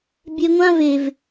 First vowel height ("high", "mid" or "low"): mid